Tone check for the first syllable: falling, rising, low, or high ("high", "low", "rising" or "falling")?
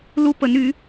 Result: high